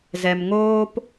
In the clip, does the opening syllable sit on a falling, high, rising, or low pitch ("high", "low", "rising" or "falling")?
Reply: low